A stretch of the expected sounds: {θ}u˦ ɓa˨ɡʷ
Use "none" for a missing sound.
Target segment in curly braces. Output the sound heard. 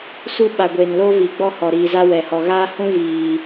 s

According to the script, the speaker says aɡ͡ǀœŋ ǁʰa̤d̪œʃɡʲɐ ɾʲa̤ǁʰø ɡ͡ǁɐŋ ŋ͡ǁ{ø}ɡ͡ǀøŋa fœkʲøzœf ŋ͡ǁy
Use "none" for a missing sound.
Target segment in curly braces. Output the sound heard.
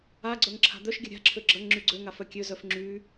y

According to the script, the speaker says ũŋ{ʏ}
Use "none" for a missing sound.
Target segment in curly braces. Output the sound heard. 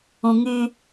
y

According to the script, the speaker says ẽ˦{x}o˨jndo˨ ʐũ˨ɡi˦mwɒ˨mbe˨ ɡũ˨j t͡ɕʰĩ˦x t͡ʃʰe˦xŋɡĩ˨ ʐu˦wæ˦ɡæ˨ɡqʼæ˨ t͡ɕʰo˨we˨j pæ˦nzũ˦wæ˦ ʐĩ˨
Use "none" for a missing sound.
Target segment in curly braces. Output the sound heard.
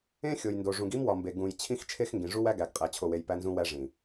xʲ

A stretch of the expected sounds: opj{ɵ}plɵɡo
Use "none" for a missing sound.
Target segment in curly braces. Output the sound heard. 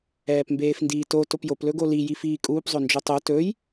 o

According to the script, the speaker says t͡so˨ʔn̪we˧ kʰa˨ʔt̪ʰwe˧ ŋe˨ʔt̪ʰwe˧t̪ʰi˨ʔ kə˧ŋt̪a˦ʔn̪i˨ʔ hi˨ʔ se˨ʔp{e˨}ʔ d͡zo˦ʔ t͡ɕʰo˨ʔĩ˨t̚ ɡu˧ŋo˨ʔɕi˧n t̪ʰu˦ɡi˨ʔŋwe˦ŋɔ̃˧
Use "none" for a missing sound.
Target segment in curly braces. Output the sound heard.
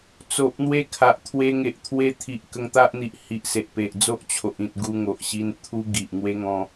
e˨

